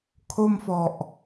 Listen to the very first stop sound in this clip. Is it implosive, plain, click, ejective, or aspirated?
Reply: aspirated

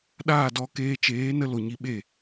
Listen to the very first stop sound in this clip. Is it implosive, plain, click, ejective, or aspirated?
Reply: implosive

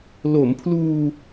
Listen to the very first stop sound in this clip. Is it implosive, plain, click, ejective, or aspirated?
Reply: aspirated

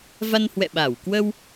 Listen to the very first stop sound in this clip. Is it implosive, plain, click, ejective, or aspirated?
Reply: implosive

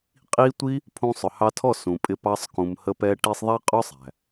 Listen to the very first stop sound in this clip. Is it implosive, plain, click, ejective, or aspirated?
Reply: ejective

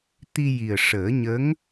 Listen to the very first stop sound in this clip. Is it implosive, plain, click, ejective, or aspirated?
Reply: plain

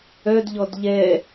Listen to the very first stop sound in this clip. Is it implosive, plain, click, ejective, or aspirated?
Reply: plain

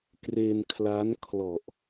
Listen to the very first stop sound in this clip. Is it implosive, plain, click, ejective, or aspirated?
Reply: plain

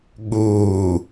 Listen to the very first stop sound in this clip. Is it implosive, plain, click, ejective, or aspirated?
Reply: implosive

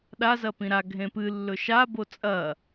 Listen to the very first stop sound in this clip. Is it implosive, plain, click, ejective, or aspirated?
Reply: implosive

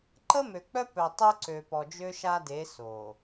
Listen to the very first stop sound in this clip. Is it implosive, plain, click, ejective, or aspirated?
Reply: click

